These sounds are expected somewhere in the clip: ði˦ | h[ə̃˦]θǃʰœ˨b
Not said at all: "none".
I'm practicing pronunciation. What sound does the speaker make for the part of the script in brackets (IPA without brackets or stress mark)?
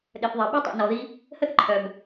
ə˦